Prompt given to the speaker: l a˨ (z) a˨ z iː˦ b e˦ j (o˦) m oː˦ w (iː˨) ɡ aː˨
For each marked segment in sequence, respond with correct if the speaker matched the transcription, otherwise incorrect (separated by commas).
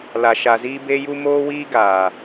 incorrect, incorrect, incorrect